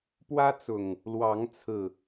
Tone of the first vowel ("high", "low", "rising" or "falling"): high